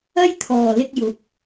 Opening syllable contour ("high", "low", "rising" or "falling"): high